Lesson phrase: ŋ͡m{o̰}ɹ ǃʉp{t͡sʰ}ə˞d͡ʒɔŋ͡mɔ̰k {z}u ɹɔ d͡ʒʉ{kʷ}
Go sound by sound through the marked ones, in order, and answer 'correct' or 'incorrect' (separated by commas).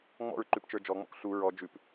incorrect, incorrect, incorrect, incorrect